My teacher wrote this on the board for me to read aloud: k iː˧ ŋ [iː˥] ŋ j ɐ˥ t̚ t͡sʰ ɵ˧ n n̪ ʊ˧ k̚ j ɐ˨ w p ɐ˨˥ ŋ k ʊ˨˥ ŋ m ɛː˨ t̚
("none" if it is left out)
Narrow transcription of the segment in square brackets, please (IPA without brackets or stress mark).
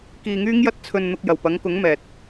yː˥